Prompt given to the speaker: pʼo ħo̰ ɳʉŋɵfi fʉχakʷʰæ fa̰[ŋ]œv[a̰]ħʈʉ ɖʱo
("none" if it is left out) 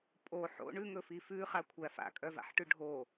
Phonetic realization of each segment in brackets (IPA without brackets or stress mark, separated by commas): kʼ, a̰